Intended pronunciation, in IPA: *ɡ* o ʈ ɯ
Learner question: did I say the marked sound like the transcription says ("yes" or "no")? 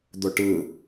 no